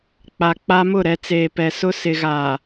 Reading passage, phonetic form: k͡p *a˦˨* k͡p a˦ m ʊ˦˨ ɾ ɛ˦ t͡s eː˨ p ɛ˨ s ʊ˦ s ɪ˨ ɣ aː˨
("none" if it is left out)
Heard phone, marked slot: a˨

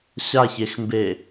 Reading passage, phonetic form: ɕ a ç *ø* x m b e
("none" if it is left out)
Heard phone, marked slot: e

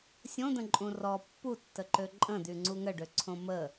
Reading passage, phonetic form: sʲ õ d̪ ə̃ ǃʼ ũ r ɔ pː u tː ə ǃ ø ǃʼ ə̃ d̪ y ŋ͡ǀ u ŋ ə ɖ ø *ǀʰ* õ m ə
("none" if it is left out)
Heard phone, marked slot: ǀʰ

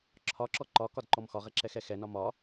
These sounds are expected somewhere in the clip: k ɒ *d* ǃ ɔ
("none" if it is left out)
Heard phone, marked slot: d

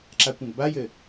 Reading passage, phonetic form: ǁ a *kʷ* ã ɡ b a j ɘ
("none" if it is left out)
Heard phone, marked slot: kʷ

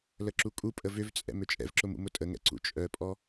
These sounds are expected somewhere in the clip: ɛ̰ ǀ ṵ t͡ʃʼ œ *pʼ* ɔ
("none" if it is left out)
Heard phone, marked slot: pʼ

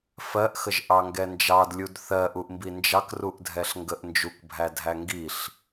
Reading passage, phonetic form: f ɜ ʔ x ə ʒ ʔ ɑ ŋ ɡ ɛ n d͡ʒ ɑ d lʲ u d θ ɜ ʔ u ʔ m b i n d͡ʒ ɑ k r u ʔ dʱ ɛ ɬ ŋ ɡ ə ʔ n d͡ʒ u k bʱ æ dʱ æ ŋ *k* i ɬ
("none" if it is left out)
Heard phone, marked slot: ɡ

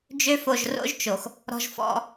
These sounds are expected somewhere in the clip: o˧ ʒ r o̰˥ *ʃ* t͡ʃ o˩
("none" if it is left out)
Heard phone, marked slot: ʒ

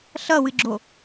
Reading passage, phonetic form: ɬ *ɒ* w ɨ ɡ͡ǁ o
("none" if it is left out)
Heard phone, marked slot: ʌ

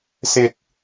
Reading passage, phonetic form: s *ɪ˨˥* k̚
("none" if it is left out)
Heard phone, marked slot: ɪ˥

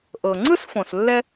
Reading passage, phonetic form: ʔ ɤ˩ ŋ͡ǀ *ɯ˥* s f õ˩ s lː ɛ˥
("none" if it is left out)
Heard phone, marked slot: ɯ˥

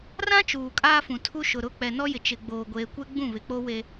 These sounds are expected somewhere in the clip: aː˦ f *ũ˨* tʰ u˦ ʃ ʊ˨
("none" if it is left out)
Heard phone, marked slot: ũ˨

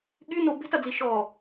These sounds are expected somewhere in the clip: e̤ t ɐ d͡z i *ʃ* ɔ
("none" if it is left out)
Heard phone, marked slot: ʃ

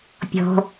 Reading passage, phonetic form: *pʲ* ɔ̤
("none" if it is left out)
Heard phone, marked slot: pʲ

